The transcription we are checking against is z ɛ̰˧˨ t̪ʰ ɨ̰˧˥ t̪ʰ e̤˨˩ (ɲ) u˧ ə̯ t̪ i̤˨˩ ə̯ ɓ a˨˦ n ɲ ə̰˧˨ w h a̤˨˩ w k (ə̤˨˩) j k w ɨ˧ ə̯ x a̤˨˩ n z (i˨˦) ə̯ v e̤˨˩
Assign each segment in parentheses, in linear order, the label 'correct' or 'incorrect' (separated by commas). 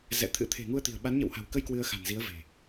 incorrect, incorrect, correct